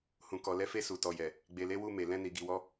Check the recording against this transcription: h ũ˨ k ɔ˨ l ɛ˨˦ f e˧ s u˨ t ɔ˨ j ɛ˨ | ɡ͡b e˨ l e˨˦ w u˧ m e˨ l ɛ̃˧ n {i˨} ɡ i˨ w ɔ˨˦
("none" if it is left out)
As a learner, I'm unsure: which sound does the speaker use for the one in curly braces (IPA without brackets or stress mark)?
i˨